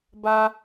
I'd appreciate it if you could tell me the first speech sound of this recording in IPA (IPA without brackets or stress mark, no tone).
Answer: b